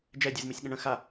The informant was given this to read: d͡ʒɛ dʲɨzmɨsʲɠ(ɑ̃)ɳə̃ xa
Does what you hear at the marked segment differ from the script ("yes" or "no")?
yes